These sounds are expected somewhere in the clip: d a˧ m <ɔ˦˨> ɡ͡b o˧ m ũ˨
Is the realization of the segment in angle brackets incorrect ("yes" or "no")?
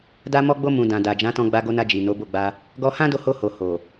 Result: yes